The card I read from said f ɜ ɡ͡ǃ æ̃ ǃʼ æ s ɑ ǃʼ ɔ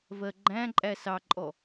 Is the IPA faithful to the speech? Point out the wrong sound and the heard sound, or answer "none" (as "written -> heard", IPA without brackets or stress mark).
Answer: f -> v